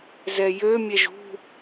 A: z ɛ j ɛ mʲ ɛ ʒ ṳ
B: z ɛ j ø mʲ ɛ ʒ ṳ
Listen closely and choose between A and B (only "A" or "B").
B